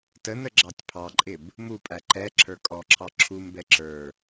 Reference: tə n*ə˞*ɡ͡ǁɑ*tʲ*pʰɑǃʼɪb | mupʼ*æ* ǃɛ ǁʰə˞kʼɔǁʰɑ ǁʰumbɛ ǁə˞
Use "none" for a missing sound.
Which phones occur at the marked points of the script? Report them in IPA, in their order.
ə, tʲ, æ

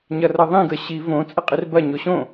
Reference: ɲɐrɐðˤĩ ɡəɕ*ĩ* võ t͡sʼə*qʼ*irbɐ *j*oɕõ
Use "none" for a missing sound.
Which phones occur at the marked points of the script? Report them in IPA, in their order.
i, qʼ, ɲ

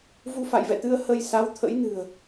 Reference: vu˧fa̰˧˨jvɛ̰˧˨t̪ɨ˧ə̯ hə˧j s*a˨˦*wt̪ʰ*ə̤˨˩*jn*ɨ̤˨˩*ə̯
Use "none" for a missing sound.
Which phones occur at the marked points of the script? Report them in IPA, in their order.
a˨˦, ə̰˧˥, ɨ̤˨˩

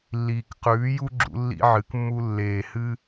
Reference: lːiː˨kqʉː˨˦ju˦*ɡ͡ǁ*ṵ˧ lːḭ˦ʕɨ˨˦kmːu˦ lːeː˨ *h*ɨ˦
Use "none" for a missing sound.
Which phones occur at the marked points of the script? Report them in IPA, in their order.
ɡ͡ǁ, h

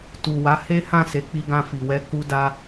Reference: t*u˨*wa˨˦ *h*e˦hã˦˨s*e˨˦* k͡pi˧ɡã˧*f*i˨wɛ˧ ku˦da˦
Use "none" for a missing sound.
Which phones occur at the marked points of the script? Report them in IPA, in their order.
u˨, h, e˨˦, f

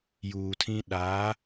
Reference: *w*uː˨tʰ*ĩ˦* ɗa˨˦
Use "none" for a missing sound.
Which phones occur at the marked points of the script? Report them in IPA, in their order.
j, ĩ˦

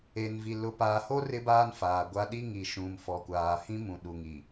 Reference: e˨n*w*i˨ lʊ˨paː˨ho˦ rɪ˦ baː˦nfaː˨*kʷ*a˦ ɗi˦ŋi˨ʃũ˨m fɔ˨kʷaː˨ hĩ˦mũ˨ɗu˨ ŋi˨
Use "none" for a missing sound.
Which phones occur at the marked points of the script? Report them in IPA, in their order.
v, ɡʷ

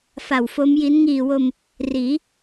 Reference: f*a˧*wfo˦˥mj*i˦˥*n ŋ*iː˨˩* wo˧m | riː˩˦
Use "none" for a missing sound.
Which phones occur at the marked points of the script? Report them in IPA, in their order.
a˨˩, i˦˥, iː˨˩

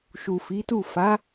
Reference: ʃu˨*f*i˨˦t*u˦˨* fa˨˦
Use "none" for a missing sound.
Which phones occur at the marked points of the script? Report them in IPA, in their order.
f, u˦˨

